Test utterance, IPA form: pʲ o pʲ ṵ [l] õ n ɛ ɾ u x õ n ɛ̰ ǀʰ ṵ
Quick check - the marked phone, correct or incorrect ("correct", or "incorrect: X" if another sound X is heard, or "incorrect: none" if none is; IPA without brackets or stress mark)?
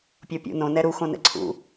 incorrect: n